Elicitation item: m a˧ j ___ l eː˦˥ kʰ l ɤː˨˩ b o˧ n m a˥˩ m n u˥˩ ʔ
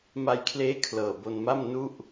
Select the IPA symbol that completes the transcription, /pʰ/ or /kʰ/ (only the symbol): kʰ